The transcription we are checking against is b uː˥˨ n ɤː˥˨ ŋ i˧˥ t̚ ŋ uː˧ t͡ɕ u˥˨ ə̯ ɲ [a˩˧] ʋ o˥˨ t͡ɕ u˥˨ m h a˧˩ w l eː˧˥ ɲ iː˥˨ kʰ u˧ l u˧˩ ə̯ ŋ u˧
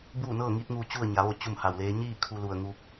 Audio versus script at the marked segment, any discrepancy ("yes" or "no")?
no